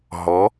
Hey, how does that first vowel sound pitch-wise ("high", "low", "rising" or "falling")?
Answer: rising